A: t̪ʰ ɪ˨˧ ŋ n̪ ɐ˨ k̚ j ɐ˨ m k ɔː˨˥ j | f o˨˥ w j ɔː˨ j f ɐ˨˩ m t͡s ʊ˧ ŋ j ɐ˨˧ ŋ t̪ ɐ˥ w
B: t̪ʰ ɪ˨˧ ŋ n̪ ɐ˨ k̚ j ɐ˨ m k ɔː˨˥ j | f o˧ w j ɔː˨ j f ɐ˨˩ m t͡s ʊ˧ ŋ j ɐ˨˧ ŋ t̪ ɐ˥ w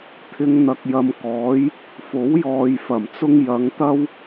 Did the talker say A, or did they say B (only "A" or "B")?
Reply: A